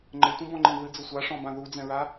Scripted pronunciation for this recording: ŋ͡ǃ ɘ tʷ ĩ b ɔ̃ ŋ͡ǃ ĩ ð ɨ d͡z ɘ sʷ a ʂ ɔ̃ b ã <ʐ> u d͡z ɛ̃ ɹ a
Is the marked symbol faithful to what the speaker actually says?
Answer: no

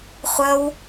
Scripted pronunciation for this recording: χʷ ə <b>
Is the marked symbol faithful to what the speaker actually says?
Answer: no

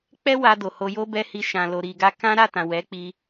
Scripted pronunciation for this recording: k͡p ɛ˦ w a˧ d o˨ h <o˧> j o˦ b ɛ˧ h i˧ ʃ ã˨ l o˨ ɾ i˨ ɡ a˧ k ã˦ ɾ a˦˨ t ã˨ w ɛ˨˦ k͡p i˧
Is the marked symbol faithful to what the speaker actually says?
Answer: yes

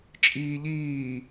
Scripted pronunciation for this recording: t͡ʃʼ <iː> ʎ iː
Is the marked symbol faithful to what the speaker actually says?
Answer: yes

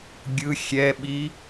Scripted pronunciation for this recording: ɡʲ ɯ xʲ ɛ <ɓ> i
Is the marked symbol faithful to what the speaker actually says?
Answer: yes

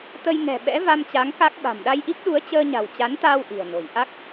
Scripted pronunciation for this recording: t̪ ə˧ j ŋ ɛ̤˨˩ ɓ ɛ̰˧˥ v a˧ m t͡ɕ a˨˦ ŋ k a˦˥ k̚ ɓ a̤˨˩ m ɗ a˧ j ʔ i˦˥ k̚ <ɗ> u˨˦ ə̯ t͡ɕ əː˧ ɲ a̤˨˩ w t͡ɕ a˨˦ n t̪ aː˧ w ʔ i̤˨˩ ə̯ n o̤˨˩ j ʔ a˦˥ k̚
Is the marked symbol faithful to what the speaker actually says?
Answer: yes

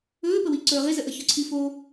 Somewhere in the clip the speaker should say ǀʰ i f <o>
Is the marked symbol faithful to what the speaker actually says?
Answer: yes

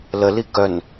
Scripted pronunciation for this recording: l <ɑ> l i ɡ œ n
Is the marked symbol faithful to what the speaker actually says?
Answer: no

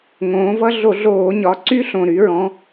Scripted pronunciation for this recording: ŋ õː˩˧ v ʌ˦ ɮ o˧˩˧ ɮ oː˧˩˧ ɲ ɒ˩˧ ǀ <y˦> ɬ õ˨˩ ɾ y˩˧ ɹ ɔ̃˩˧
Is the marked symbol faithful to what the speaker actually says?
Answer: yes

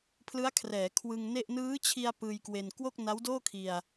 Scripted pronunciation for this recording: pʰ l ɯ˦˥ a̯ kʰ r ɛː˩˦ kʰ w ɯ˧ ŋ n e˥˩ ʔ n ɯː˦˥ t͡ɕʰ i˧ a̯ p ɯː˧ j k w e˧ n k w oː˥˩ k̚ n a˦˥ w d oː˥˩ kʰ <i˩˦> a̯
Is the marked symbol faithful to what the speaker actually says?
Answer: no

